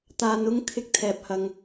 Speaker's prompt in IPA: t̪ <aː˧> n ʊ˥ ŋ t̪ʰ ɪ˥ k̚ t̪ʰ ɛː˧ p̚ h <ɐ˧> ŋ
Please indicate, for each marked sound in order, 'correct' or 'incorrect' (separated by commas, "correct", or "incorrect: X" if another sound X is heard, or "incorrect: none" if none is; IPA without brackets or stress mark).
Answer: correct, correct